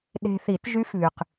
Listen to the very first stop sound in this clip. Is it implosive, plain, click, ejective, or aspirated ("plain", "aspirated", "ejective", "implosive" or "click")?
implosive